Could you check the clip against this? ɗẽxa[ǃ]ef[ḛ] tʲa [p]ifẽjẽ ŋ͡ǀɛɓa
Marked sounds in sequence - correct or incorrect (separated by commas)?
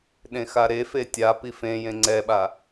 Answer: incorrect, incorrect, correct